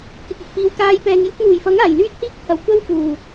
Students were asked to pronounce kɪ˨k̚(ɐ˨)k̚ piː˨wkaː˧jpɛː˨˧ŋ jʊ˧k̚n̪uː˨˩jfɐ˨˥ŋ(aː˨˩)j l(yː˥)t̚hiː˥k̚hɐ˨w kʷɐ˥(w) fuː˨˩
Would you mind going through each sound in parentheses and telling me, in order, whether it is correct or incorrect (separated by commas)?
correct, correct, correct, correct